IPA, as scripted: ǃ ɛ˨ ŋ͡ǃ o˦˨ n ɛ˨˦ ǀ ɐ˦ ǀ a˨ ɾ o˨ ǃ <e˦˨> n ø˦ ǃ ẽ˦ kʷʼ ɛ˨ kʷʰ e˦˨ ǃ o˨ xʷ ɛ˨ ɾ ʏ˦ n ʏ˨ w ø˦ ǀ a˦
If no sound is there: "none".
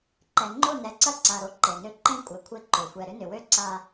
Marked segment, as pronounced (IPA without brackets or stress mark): e˨